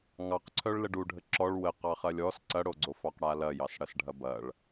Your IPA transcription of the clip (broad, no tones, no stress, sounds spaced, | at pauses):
ŋ ɑ q ǀʰ œ ɭ l ə ɖ u ɖʱ ə ǁ ɔ ɭ w ə q ɑ χ ɐ lʲ ɔ s ǀ ɐ ɽ o ɡ͡ǀ o f ɑ q ɽ a l ɐ j ɑ s ɽ ɐ s ɖʱ ɐ b ɐ ɭ